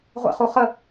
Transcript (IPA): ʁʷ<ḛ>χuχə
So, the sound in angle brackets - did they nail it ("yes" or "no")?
yes